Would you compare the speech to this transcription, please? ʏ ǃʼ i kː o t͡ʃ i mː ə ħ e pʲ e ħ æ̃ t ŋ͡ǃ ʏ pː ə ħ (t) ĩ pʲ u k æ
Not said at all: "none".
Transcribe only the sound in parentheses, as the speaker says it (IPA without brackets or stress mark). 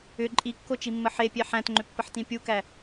t